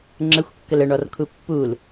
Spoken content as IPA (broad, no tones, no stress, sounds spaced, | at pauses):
ŋ͡ǁ ə xʷ kː ə l ə ɳ ɔ r kʰ u pː u l